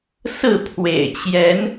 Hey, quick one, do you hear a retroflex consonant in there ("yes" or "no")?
no